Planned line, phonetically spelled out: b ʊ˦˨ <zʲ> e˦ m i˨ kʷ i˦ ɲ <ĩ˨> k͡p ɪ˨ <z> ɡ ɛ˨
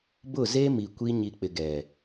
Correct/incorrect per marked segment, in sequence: incorrect: z, incorrect: i˨, incorrect: none

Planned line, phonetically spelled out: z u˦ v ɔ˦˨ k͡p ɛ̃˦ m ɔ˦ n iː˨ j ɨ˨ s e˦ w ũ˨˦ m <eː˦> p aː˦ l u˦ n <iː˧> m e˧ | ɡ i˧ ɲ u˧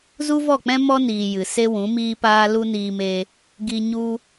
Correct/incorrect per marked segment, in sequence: incorrect: iː˦, correct

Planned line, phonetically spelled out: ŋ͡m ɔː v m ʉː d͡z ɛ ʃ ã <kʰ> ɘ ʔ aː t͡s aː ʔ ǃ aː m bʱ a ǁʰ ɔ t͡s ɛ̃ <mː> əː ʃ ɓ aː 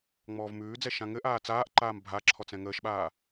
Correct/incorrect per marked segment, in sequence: incorrect: ŋ, incorrect: ŋ

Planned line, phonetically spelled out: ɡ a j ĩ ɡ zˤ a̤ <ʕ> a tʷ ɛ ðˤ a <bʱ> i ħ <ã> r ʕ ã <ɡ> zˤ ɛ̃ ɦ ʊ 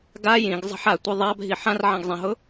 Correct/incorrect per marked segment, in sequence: incorrect: ħ, correct, correct, correct

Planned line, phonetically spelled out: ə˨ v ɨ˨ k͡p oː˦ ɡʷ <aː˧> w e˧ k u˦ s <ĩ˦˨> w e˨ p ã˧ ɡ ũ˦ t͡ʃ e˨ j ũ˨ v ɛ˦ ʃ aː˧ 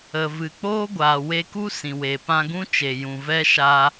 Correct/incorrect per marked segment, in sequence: incorrect: aː˨, incorrect: ĩ˨

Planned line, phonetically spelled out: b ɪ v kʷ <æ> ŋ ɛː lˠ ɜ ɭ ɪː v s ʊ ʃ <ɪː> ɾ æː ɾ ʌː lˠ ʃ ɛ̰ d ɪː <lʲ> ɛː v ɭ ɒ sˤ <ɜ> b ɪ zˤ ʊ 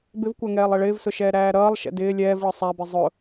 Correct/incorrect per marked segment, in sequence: correct, incorrect: ɛː, correct, incorrect: æ

